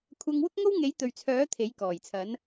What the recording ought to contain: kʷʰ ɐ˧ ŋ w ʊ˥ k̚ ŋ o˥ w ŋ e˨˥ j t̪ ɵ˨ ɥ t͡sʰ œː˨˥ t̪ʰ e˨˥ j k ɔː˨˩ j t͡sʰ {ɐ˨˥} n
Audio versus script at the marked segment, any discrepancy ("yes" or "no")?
no